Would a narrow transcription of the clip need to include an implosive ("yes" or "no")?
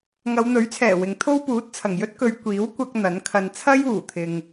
no